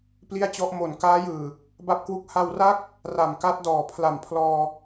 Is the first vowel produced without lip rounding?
yes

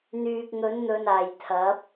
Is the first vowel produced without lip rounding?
no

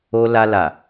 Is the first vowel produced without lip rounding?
no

